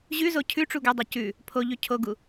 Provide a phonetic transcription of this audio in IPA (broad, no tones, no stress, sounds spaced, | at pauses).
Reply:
ʑ ʉ z o cʰ ʉ ʈ͡ʂ u ɡ ɵ dˤ o c ʉ | pʰ o ʎ ʉ cʰ o ɡ u